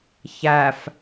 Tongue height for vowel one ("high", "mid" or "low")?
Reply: low